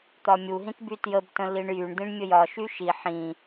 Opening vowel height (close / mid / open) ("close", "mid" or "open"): open